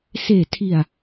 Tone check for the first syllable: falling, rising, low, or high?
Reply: low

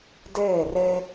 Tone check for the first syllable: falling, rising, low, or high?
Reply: falling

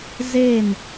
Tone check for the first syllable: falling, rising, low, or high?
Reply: falling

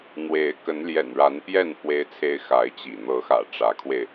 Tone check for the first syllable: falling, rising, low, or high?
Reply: rising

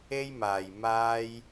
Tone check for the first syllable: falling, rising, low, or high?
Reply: high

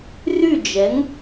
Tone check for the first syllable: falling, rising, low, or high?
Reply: falling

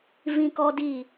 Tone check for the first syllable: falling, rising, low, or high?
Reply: high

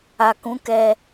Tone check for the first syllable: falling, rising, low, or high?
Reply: low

